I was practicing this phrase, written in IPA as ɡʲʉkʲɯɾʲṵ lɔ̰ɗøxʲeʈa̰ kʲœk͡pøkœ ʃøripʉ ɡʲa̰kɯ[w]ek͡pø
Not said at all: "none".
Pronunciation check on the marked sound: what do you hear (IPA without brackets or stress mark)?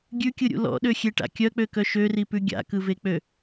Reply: v